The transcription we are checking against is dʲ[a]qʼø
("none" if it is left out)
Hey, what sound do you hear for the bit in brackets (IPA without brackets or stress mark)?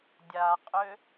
a